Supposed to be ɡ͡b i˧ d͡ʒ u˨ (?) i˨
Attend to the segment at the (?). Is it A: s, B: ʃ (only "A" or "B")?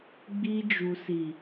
A